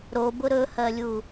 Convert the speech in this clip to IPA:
ɾ o b ʊ ɾ ɵ h ɜ lʲ u

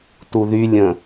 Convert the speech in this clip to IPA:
t u ð y lʲ ə̃

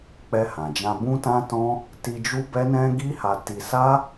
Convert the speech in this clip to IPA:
k͡p ɛ˧ h ã˨ d͡ʒ ã˧ b ũ˦ t ã˦ t ɔ̃˦ | t i˧ d͡ʒ u˦ b ɛ˦ n ɛ̃˦ ɡ i˦ h a˧ t i˧ s a˦

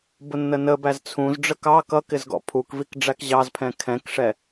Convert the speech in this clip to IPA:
b ʊ nː ə n ə b æ z t͡sʰ ũ z ɖ͡ʐ ə k ɑ k ʌ k ɪ z ɡ ɔ̰ pʰ u k v i k ɖ͡ʐ æ k ʑ ɑ z pʰ ɛ̃ kʰ ɛ̃ k ʂ ɛ

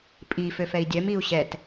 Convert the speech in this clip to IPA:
pʼ i f ø f ɛ i̯ dʲ œ m i u̯ ɕ ɛ t

